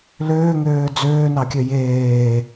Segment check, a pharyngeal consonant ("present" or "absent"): absent